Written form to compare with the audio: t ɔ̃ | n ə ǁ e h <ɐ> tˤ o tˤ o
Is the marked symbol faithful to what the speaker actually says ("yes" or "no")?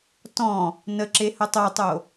no